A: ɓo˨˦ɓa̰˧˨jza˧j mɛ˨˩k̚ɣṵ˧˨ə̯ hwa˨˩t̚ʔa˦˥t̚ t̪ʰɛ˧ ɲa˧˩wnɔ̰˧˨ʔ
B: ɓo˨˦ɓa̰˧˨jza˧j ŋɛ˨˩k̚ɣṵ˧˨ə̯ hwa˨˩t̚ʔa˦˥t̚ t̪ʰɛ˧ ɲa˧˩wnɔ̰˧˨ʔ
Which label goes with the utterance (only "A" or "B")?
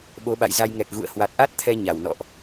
B